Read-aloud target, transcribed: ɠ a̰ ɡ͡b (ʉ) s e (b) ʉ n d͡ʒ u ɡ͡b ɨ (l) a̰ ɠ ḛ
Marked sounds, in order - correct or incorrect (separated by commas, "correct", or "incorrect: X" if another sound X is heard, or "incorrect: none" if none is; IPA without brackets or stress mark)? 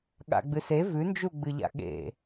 incorrect: ɨ, incorrect: v, incorrect: ʎ